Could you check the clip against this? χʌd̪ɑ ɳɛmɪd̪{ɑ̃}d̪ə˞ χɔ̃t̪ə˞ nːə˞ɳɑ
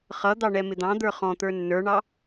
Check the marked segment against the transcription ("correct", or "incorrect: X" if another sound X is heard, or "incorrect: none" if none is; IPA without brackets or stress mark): correct